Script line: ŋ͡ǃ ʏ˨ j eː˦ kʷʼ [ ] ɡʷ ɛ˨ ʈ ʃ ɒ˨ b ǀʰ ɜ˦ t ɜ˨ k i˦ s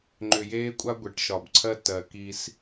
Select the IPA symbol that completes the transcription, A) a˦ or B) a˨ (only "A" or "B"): A